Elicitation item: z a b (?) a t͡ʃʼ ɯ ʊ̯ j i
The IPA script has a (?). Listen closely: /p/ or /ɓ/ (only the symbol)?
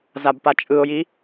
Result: p